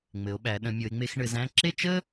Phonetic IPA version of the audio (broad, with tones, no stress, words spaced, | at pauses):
ŋ͡mɘ˩˧o̯ɓæ˩˧ ɗə̃˩˧mʲo˩˧e̯ŋ͡me˧x ɳɘ˩˧zæ̃˥˧ǁe˥˧t͡ʃə˥